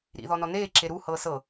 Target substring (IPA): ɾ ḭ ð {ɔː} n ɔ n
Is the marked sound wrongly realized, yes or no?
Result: yes